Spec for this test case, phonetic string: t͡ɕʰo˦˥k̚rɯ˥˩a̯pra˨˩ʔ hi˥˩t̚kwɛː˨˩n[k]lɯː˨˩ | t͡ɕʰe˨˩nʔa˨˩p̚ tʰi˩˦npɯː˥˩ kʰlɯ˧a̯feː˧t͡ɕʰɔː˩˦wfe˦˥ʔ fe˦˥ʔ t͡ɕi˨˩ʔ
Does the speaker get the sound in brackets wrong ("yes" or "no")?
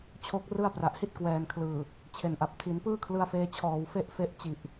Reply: yes